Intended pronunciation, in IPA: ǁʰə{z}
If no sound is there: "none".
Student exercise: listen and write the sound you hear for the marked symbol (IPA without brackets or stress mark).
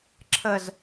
z